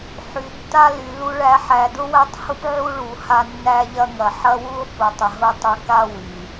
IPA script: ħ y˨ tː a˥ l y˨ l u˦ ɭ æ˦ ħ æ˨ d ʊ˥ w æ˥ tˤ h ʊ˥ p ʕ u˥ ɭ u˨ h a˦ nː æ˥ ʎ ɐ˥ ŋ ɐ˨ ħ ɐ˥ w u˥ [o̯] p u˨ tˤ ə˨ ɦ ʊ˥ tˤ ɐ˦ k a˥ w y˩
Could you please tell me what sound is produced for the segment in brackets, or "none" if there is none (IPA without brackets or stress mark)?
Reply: o̯